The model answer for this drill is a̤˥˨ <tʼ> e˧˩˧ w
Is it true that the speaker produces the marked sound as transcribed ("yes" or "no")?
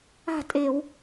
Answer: yes